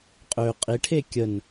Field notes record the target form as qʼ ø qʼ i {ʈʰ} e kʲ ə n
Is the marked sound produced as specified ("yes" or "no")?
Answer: yes